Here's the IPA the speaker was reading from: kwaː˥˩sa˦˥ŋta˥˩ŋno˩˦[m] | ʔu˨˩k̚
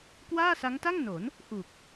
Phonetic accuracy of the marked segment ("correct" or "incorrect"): incorrect